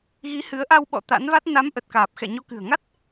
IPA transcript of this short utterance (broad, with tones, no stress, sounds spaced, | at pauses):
ɣ i˨˦ h ɨ˨˦ ə̯ ʔ a˧ w ɓ ɔ̰˧˨ t̪ a̰˧˥ n v a˦˥ t̚ n a˨˦ m ʔ ə˨˩ t̚ k aː˨˩ p̚ x ɛ̰˧˨ ɲ o˧ k ɨ̤˨˩ ə̯ ŋ a˦˥ t̚